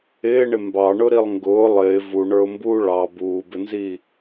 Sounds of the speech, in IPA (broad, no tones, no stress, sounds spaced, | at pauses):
ɪː ɳ ɪ m b ɑ ɳ ʊ ɾ i lˠ ŋ ɡ ʊː lˠ ɪː v u ɳ ə˞ ʊ̯ m b uː ɭ ɑ b uː b ɪ n z iː